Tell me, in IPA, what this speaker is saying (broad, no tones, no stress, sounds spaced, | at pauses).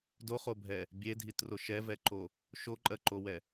d o χ o bʱ ɛ | bʲ e dʱ i t r o ʃ ɛ v ɛ ǃ o | ʃ o ǃʼ ɜ ǃ o w ɛ